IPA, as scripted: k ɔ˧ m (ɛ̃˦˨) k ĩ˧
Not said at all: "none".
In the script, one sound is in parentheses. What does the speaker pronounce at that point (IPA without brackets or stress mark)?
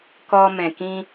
ɛ̃˨